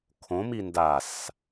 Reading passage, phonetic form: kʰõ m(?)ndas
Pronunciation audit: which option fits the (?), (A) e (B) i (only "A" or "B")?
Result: B